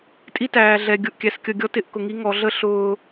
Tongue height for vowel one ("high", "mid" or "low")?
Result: high